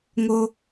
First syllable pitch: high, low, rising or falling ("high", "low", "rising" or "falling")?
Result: high